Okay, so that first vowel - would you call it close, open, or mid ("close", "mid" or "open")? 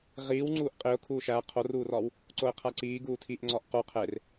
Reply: close